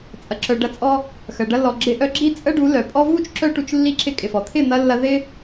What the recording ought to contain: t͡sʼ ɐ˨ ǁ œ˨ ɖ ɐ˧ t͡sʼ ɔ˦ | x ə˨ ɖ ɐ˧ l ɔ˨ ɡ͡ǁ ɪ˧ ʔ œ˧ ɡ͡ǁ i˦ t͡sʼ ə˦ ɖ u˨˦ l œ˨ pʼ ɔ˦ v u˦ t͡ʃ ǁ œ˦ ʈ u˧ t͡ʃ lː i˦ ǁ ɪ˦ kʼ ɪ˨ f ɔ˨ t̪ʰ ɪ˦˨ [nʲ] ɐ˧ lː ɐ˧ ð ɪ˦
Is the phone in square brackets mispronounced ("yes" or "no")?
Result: yes